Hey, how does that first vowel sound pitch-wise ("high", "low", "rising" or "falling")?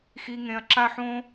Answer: high